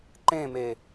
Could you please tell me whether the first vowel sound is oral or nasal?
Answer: nasal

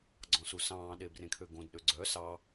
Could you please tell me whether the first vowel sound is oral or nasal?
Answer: nasal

